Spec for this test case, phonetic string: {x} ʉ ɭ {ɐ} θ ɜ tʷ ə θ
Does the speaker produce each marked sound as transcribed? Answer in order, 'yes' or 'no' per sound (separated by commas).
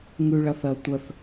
no, yes